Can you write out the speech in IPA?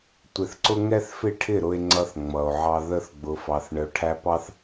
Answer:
tʷ ɪ˧ θ ǀ ʊ˦ ŋ ɛ˦ θ f ɪ˦˨ ʈʰ ɪ˦˨ ɾ ʊ˧ e̯ ŋ͡ǀ ʌ˧ θ ŋ͡m ʌ˨ o̯ ʕ ɑ˧ ð ə˧ θ ɡ͡b ʊ˨ f ɑ˨ θ ɳ ə˨ o̯ ʈʰ æ˧ p ɑ˧ θ

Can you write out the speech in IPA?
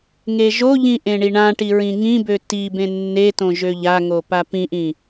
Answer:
ŋ e ʒ o ʎ ĩ ʔ ẽ ɳ i ɳ ã ʈ i ɹ ĩ ŋ ĩ b ø t i b ẽ nː e t õ ʒ ø ʎ a ŋ o p a p ĩ ʔ ĩ

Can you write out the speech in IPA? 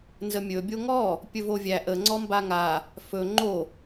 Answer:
n z ə mʲ ɵ bʲ o ŋ ɔ | pʲ ɵ v o vʲ æ ʔ ə ŋ͡ǀ ɔ m b a ŋ a | f ɵ ŋ͡ǃ o

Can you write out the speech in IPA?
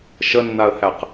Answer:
ʃ ə nː a ə̯ h æ q

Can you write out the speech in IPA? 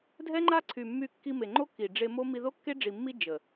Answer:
dʱ ɛ˦ ŋ͡ǃ a˦ ǀʰ y˨ mː y˧ kː i˧ m e˨ ŋ͡ǃ o˦ k i˨ ɖ͡ʐ e˧ m o˦ m i˧ ð o˦ kː e˦ ɖ͡ʐ i˨ mː i˧ d͡ʒ ə˨

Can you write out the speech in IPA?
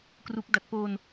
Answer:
k r u˦˥ k̚ d a˨˩ t̚ p oː˧ n

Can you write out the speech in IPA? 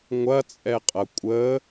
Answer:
ŋʷ ɐ t͡sʼ ɛ qʼ ɐ kʷʼ ə

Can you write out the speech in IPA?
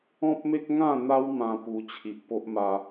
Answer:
ɔ̃˦ p̚ m e˦ k̚ ŋ ã˥˧ n̪ a˦ w m ã˦ p u˧ t͡ɕʰ i˨ ʔ p o˦ ʔ m a˧

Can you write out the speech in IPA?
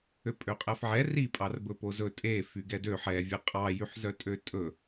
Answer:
ø pʼ ø qʼ æ f ʕ ɛ r i pʼ ɑ r b ɵ p o z ɵ tʼ e f y ɡ ɛ d ø ħ ɛ vʲ e qʼ ɑ j y ħ z œ tʼ ø tʼ ɵ

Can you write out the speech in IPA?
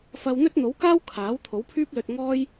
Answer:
f ɐ˧ w n̪ ɵ˥ t̚ n̪ o˨˥ w k aː˥ w kʰ aː˨˥ w t̪ʰ o˨˥ w pʰ yː˥ p̚ l ɵ˧ t̚ ŋ ɔː˥ j

